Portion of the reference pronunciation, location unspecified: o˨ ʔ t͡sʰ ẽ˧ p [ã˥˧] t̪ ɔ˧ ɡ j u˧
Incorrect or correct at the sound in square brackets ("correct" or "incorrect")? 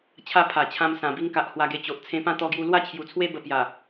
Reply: correct